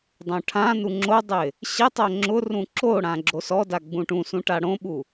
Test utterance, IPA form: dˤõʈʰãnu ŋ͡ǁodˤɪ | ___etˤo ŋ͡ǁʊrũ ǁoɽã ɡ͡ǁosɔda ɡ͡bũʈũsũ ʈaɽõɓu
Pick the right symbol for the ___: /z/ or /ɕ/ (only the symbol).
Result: ɕ